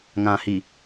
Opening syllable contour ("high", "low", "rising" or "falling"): low